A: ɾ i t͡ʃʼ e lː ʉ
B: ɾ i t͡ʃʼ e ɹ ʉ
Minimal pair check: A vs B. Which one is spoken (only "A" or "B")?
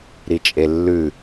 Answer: A